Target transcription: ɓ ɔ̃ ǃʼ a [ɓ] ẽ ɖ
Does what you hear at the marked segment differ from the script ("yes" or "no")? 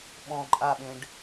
no